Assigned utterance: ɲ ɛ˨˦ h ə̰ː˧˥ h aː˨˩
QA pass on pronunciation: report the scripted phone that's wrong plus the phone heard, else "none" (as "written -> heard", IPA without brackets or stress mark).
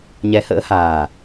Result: none